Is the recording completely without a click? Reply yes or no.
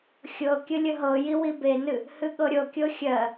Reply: yes